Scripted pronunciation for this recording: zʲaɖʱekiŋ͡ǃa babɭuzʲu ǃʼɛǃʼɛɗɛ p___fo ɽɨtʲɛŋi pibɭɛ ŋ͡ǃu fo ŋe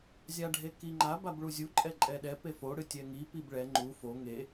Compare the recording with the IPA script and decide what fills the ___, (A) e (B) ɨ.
A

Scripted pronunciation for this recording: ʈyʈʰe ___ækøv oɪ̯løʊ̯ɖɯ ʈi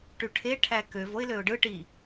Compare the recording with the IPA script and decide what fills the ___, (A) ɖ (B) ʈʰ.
B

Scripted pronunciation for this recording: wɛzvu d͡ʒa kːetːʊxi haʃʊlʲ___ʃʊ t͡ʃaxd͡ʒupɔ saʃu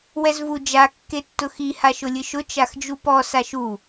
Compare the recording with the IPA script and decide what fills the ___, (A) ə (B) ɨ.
B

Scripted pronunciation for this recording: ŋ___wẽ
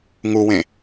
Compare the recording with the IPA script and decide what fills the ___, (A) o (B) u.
B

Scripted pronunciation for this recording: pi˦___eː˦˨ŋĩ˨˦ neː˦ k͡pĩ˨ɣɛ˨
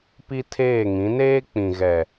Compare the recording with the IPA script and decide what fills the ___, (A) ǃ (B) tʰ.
B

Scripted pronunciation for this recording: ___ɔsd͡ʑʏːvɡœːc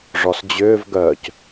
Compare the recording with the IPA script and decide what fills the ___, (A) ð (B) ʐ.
B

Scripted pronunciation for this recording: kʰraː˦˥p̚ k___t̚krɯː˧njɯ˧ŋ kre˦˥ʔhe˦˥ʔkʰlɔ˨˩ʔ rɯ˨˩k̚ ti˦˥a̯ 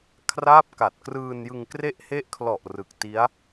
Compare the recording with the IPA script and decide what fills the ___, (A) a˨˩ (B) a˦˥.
A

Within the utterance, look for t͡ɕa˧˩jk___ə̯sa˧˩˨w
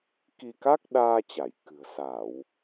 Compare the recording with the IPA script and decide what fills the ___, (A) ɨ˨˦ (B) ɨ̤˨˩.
B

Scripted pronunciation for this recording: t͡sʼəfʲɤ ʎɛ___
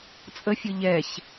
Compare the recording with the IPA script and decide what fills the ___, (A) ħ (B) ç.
B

